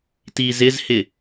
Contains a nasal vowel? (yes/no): no